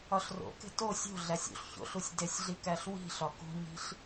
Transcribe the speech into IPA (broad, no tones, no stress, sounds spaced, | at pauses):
ɒ ɬ r o̰ k e̤ t o sʲ o̤ ɮ æ sʲ ṵ ɬ ç o̰ ɬ u sʲ d e sʲ ɮ i k æ ɬ w i̤ ɬ ɒ k ṳ ɲ i̤ ɬ